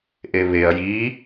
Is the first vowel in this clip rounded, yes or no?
no